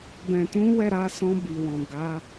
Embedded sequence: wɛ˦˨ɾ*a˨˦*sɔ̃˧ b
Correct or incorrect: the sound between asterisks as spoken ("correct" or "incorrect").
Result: correct